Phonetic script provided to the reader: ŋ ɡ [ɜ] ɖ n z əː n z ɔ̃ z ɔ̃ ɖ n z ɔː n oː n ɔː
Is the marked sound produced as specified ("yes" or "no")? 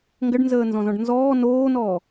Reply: yes